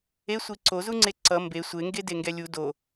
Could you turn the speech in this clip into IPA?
esʷi ǀozuŋ͡ǀe ǀʌ mbe sʷeŋɡedeŋɡɛ lʲu do

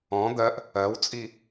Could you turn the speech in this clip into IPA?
ɔ̃ d̪ɜʔ | ɜwt͡sʼi

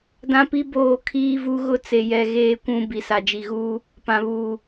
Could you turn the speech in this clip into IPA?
dã˦pi˦ boː˦˨ kʰiː˦vu˦ ɣʊ˦t͡se˨jɛ˨ ɣeː˨kʷũ˨ bi˨sa˨d͡ʒi˨ɣuː˦ | pã˨βuː˨

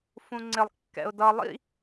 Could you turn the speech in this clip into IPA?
fũŋ͡ǀɪlˠ kːɛ̰ʊ̯dʌ lˠḭ

